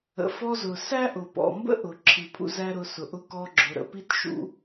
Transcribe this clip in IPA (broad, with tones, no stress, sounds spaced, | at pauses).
ə̰˩ f ɔ˧ z ʊ˩ s æ˥ ʔ ʊ˩ p ɔ̰˩ m b ə̰˥ ʔ ʊ˩ ǁʰ i˩ pʰ ṵ˧ z æ˥ ɾ ʊ˧ s ʊ˩ ʔ ʊ˥ k ɔ˧ ɡ͡ǁ ʊ˩ ɾ ə̰˩ p i˥ t ʃ ṵ˧